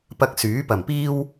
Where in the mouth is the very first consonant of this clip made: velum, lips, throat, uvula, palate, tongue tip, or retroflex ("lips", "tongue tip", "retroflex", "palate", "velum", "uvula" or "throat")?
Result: lips